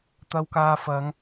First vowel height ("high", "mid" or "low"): low